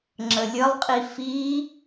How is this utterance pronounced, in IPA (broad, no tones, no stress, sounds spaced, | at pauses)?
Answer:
ŋ͡ǁ ə lʲ ə lˠ qʼ i f i